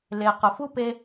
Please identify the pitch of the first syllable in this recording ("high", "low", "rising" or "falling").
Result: low